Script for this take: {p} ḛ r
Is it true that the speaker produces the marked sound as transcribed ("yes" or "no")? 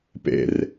yes